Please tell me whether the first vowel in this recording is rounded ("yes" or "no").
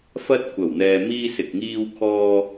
no